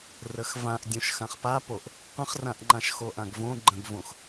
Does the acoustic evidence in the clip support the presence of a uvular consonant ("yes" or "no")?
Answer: yes